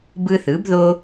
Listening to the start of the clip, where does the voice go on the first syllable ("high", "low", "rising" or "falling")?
high